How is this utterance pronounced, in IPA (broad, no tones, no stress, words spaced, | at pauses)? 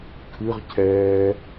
kʰɨʁ cʰɛː